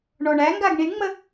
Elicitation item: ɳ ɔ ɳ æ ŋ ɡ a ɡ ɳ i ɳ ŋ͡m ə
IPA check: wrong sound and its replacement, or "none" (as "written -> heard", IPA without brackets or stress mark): none